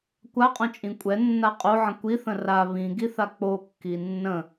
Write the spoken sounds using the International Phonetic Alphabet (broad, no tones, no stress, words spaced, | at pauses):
kʷaqʼõt͡ʃʼĩ kʷʼɛnːa qʼoʕə̃ kʷiθə̃ ra βĩɡiθa k͡pokːi nːə̃